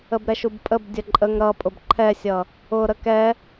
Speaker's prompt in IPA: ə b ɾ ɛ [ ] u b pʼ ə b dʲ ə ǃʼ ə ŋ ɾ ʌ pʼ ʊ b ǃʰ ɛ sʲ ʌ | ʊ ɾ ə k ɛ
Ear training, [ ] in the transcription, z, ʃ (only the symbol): ʃ